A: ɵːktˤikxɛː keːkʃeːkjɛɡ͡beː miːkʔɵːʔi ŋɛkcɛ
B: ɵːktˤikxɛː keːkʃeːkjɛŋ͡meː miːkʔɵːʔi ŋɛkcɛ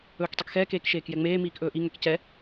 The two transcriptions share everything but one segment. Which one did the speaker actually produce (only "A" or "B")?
B